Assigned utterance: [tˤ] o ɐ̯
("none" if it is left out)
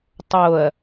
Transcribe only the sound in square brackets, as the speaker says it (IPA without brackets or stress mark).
tˤ